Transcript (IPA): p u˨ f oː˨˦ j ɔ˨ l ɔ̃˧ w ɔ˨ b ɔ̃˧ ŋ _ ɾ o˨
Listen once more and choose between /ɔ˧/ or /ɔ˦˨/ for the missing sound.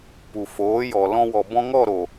ɔ˦˨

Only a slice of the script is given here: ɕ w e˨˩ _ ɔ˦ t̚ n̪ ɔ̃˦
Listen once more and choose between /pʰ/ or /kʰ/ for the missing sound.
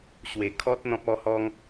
kʰ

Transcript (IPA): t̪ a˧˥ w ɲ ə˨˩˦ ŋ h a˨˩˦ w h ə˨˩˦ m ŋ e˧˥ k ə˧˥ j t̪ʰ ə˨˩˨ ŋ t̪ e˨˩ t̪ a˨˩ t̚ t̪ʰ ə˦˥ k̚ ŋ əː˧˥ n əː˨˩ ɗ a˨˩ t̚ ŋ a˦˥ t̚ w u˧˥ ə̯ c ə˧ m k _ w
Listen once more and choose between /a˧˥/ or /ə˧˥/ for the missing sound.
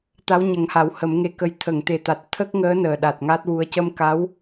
a˧˥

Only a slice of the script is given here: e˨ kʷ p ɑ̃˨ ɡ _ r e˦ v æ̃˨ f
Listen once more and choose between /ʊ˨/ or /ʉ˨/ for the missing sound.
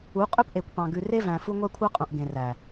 ʉ˨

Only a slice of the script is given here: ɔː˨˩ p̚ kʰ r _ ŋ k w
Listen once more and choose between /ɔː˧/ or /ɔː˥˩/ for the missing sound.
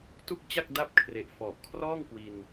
ɔː˥˩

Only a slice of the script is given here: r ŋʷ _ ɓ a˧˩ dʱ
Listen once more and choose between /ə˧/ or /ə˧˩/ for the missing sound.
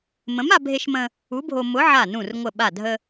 ə˧˩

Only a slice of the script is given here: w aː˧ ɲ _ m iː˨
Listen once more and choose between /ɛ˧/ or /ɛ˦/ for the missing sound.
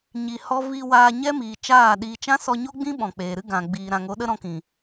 ɛ˦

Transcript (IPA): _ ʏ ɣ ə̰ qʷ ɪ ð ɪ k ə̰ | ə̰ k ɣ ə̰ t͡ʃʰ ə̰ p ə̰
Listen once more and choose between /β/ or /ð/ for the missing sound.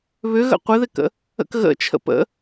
β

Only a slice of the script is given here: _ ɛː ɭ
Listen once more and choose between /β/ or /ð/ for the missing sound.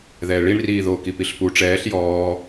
ð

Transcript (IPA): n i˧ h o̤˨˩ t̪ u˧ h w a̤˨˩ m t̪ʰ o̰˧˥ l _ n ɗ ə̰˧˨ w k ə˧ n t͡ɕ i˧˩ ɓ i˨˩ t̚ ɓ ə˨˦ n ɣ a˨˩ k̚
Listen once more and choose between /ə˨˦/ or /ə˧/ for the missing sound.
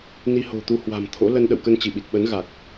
ə˧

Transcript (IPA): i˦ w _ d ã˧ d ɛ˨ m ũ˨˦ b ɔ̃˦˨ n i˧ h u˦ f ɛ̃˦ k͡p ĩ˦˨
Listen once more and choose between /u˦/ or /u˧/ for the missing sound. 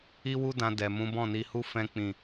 u˦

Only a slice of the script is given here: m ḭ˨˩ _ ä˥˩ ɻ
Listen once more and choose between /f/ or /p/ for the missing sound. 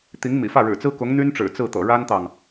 f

